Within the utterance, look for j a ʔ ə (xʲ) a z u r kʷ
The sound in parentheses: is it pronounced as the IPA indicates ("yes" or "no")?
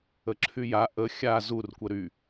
yes